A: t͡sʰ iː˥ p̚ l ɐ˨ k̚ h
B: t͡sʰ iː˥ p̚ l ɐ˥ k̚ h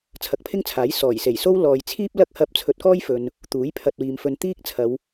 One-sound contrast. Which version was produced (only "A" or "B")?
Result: B